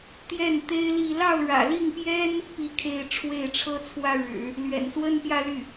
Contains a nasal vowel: no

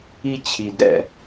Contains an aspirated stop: yes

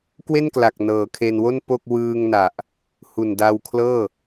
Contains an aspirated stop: yes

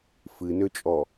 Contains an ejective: yes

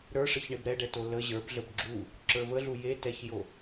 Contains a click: yes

